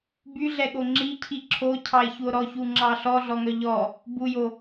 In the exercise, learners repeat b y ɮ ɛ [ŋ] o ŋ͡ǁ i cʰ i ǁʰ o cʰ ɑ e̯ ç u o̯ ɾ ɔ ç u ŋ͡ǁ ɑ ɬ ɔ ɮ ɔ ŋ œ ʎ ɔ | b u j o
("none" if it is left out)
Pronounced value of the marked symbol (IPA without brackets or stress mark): ɠ